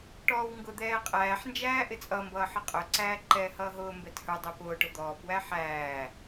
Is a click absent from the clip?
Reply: no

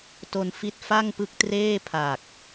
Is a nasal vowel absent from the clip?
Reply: yes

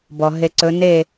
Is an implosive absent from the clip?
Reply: yes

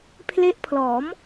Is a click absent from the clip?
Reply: yes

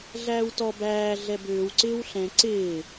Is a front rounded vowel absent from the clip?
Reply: no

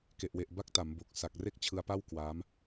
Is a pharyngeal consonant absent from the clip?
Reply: yes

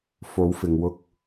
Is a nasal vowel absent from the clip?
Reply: yes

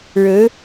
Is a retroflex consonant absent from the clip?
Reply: no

